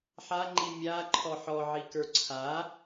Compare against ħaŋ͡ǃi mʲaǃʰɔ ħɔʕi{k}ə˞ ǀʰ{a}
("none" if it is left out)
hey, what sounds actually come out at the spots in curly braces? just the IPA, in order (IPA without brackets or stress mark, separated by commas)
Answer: k, a